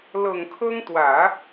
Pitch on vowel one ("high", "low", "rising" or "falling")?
low